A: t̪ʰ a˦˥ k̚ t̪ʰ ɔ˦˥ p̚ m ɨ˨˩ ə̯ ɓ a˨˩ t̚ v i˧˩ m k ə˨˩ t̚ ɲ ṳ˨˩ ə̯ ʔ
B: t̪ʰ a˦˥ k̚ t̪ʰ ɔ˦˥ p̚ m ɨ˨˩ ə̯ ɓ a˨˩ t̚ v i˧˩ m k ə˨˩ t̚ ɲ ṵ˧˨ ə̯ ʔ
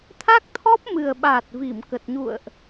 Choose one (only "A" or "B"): B